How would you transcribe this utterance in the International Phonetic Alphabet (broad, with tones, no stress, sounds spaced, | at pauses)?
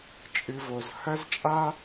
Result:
t͡ʃʼ ɨ˧ v o˨ z h ɐ˦ z t͡ʃʼ a˦